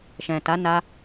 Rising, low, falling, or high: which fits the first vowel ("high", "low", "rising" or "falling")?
low